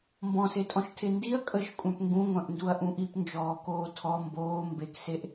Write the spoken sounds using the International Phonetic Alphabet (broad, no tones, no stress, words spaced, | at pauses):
mbɔ̃setʼɔ̃ʃ tʰendiɐ̯ kʼəʃ kʷʼœ̃pŋɡũŋʷœ̃ʔnduɐ̯ ʔũʔip nd͡ʒɔːkoːtʰɔ mboː mbekseʔ